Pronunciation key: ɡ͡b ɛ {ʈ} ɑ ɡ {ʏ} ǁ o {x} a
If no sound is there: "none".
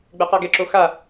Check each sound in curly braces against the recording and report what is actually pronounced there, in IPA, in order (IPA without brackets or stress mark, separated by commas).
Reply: q, ɛ, x